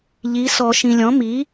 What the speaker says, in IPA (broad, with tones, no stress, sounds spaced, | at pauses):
ʎ i˩˥ s ɔ˨˩˦ ʃ ĩ˨ lʲ ɔ̃˩˥ m i˩˥